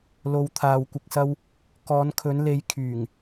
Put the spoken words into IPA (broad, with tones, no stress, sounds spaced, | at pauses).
l o˨ w t̪ʰ aː˨ w kʷ ɪ˨ k̚ s ɐ˧ w | k ɔː˨˧ n kʰ ɵ˨˧ n l e˨˧ j kʰ yː˨˩ ŋ